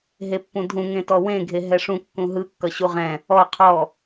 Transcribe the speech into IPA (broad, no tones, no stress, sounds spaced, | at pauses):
ɦ e pː ũ dʱ ũ ŋ ẽ t ɔ w ẽ ɡʱ e ɦ ɛ ʂ ũ kː ũ ɦ ɯ kː ʌ ɕ u ʁ ɛ̃ | ɔ qʰ ɔ